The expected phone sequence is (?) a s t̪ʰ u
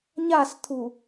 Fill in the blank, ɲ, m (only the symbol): ɲ